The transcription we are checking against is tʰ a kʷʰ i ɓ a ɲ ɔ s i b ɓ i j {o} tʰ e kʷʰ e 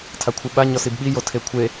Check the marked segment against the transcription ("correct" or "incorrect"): correct